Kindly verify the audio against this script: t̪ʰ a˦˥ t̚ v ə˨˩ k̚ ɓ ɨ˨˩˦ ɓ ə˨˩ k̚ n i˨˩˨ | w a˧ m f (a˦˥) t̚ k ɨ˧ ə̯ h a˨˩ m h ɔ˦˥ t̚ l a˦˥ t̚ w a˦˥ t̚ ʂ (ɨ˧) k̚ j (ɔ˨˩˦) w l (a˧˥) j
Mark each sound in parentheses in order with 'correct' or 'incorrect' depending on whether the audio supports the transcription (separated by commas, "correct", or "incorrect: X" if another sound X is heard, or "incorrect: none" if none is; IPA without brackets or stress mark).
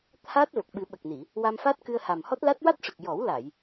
correct, incorrect: ɨ˨˩, correct, incorrect: a˨˩˨